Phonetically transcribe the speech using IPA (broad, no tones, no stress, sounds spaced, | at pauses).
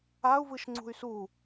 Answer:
a u̯ v ɯ ʃ ŋ͡ǀ ṳ y̯ s u